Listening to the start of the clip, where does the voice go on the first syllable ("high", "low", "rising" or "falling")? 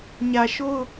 low